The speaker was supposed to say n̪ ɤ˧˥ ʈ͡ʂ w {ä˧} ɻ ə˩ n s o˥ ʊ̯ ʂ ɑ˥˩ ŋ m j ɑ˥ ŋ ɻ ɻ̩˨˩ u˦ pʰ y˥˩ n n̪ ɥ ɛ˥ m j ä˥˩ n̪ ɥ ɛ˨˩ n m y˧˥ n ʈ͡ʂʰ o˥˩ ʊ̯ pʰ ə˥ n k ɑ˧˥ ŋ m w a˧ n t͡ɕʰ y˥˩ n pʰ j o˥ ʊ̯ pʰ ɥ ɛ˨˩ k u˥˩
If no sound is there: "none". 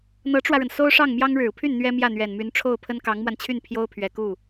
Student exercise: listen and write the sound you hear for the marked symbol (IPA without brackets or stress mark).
ä˧